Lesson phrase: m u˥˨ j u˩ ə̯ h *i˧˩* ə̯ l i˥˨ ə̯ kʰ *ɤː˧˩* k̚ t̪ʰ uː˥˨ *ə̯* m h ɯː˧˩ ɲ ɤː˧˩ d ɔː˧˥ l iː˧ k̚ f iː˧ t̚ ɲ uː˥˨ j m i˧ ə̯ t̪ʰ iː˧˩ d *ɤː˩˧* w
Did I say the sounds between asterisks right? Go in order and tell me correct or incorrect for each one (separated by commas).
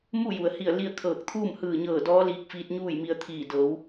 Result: correct, correct, incorrect, correct